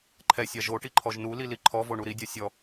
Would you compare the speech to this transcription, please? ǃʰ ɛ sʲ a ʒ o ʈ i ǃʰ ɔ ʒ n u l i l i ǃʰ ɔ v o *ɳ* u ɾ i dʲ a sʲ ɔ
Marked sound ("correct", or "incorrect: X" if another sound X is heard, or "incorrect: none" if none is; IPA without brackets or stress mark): correct